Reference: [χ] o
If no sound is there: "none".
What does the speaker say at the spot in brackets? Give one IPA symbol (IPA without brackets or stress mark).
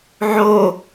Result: ʕ